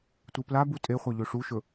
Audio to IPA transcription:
tʷ ɨ p l a b u tʼ e χʷ a ʎ ɵ ʂ u ʃ ɵ

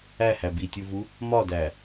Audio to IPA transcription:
æ h æ b i tʲ u v u | m ɒ d æ

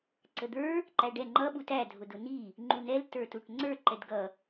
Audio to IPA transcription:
ǀ ə d̪ ə˞ | ǃ æ ɖ ɛ ŋ͡ǃ ʌ ɓ u t æ dʱ ʊ d ʊ n i | ŋ͡ǃ u n ɛ l t ə˞ t u ʈ ŋ͡ǀ ə˞ ǃ ɛ d ɡ ʌ

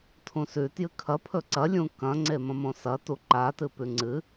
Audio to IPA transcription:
tʰ ũ s ʉ t j ɨ kʰ ɐ pʰ ɵ ǀ ɐ lʲ ũ k ɐ̃ ŋ͡ǀ e m ɐ̃ m õ s ɐ t u ǃ a t ɨ p ʉ ŋ͡ǀ ɨ

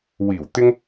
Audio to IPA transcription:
w iː˨˩ w t̪ ɪ˥ ŋ

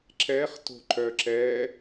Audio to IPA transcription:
ǁ ɛ χ t o̤ ǃ œ ǁ ɛ

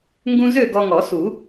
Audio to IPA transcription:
ŋ ɡ ũ˧ z ø˥˨ ɡ ɔ˧ ŋ ɔ˨˩˦ s u˨˩˦

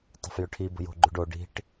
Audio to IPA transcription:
tˤ ə̤ f j ʏ ʈʰ i b ə̤ j o̤ ɡ͡ǃ ʉ ɖ o ɖ i̤ ʈ

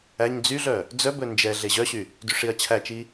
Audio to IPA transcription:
æ ɲ d͡z y ɮ œ | d͡z œ b ɵ n d͡ʒ ɛ ɮ e ʑ œ ɕ y | d y ʂ i ɐ̯ t͡ɕʰ æ t͡ʃ i

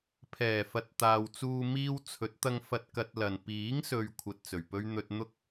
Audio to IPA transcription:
pʰ ɛː˨˩ f ɐ˨˥ t̚ t̪ aː˨ w t͡s uː˧ m iː˧ w t͡sʰ ɵ˨˥ t̚ t̪ ɐ˧ ŋ f ɐ˧ t̚ k ɐ˧ t̚ l ɐ˨ n p iː˨˥ ŋ s ɵ˨ ɥ kʷʰ ɐ˧ t̚ t͡s ɵ˨˩ ɥ p ɵ˥ ɥ n̪ ɵ˥ t̚ n̪ ʊ˥ k̚

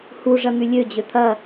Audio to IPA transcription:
h u ʐ ɐ n̪ y lʲ ø d͡ʑ ø t̪ʰ ɐ

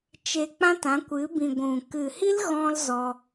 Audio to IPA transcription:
t͡ʃ e˧ k͡p ã˦ t ã˨˦ kʷ ɨ˨˦ b ĩ˨ ɡʷ ũ˨ k ɨ˨ h i˦ l ɣ ɔ̃˦ l z ɔ˧

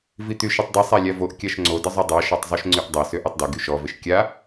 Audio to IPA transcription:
v i t̪ y ʃ i tˤ d i sˤ a lʲ a v o ʔ kʲ a ʃ ŋ͡ǀ o d ə zˤ y dˤ a ʃ ɔ tˤ zˤ o ʃ ŋ͡ǀ y ʔ dˤ e s ø ʔ œ tˤ d e ɡ y ʃ ɔ v e ʃ kʲ a

